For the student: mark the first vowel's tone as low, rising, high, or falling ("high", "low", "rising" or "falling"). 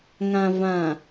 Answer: low